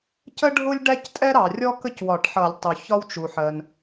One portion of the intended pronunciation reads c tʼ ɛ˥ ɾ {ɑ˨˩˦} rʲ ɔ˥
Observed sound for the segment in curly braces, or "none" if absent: ɑ˩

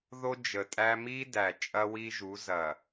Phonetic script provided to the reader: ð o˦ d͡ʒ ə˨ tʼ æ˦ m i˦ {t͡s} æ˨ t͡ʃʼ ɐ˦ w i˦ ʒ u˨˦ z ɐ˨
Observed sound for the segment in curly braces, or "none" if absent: d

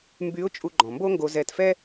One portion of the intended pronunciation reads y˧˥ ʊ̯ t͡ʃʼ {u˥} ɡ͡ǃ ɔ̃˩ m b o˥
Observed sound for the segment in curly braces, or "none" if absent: u˧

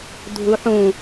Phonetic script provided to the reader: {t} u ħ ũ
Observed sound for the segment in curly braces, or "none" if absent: dʱ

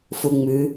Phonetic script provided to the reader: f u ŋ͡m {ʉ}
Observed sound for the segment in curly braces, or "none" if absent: ʉ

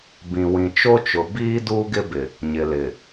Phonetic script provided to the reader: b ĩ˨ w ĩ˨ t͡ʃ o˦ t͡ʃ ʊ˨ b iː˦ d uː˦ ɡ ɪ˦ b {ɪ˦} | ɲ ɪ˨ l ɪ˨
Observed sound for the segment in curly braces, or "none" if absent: ɪ˨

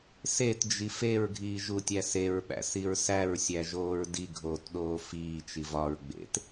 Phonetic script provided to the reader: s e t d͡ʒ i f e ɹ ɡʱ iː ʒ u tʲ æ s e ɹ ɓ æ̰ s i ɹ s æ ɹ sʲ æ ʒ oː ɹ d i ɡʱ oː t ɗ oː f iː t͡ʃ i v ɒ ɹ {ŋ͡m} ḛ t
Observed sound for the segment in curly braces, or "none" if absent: ɡ͡b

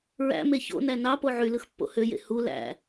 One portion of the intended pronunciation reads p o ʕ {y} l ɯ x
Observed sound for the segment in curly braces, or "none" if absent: y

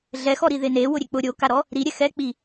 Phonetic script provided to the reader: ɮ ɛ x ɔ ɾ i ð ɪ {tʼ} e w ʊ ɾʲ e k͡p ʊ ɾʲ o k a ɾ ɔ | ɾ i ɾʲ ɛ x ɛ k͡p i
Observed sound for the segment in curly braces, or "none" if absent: n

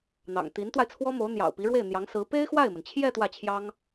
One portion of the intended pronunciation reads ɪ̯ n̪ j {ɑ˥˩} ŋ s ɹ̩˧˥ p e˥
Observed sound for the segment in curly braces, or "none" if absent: ɑ˧˥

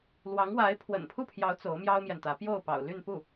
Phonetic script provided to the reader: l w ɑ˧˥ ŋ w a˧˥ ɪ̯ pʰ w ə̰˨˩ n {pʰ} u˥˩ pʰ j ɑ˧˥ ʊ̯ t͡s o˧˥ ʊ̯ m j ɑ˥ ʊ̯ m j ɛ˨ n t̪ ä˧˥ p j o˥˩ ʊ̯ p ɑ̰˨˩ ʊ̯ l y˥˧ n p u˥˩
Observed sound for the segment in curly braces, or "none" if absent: pʰ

